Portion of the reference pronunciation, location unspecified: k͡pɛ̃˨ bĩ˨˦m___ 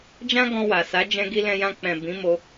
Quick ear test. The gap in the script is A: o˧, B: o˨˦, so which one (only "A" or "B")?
A